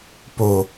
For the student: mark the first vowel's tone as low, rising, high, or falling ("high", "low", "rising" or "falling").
low